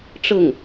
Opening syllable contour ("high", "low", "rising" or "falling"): falling